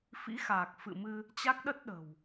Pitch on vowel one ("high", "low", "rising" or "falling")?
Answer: rising